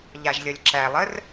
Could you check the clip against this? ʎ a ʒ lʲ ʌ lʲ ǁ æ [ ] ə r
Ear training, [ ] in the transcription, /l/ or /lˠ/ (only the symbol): lˠ